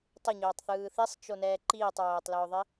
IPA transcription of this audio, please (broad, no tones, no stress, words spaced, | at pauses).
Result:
tˤɪɲɵːtˤθɯː θisˤt͡ʃonɛː ǃiːtˤɹoːtˤlɵːðˤɪ